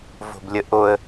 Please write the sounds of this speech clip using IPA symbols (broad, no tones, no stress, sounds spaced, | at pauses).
v o̤ b lʲ ə ʔ o ə̯